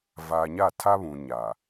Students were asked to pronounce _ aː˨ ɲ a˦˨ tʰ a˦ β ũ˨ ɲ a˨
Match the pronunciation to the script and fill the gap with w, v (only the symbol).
v